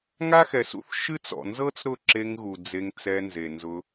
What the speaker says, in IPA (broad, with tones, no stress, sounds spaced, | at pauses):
ŋ a˦ x ɛ˨ s ṵ˦ θ ʃ ɨ˦ t͡s ɔ̰˨ n z ɤ˦ t͡s ɾ ʊ˦˨ ǁ e˧ ŋ ɣ u˨ d͡z e˧ ŋ t͡s ɛ˧ n z e˨ n z ʊ˧